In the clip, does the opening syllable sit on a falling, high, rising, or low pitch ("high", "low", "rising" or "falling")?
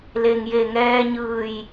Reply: low